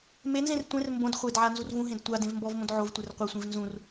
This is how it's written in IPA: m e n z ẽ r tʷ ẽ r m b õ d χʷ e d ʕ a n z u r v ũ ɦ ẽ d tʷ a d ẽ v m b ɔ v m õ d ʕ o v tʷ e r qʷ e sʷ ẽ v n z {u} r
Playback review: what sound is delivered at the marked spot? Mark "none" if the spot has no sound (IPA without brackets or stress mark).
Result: ũ